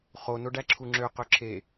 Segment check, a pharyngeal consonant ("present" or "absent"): absent